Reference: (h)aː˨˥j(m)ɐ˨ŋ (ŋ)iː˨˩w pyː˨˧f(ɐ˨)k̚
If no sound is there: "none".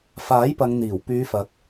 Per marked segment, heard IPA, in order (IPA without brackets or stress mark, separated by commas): f, p, n̪, ɐ˨